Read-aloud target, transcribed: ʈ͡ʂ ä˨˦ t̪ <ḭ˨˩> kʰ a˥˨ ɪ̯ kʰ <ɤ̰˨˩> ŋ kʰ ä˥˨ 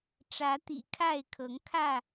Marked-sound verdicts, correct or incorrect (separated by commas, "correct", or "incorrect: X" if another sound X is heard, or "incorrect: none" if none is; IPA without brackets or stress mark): correct, incorrect: ɤ˨˦